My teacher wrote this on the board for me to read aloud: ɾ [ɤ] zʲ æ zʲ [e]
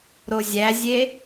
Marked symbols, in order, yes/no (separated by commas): no, yes